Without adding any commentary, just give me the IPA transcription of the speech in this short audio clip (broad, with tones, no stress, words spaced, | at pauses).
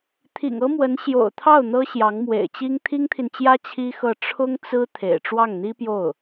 t̪ʰḭ˨˩ŋɤ˥mwə˧˥n ɕjo̰˨˩ʊ̯t̪ʰɑ˥˩ʊ̯ n̪ɤ˥ɕjɑ˧˥ŋ mwḛ˨˩ɪ̯t͡ɕi˥ŋ t̪ʰi˥ŋt̪ʰi˨nt͡ɕjä˥ t͡ɕʰi˥xɤ˥˩ ʈ͡ʂʰʊ˥ŋt͡sɹ̩˥ t̪ʰḛ˨˩ɪ̯ʈ͡ʂwɑ˥˩ŋ n̪i˥pjo˥˩ʊ̯